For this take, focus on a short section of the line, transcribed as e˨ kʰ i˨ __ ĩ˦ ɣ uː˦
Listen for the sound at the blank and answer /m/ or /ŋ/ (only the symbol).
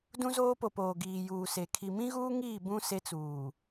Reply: m